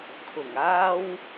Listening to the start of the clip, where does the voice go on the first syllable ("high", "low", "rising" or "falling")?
low